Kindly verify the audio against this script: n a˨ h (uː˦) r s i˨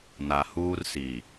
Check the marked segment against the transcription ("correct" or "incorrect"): correct